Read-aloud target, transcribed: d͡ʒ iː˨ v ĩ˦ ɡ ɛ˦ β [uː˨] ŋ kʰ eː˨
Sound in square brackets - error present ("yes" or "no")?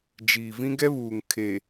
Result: no